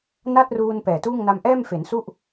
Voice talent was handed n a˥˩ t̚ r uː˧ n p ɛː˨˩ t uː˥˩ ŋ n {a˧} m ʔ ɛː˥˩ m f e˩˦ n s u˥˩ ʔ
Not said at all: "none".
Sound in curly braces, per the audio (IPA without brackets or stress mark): a˧